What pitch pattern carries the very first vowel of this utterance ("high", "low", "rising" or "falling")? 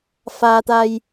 low